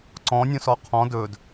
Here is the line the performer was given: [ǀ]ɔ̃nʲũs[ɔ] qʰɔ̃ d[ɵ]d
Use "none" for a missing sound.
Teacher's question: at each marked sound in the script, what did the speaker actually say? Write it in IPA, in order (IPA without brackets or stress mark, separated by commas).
ǀ, ɔ, ɵ